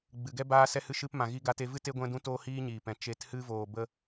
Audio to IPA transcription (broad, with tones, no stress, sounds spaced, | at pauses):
ɡ͡b ɨ˨ ɡ ɛ˦ b aː˧ s ɛ˧ h ɨ˧ ʃ ɨ˧ p m ã˨ ɣ i˧ ɡ a˧ t e˧ v ɨ˦ t e˦ ɡʷ ɛ̃˦ d ũ˦ t oː˦ h iː˦ ɲ iː˨ p ɛ̃˨ t͡ʃ e˨˦ t h ɨ˧ v oː˨ b ə˧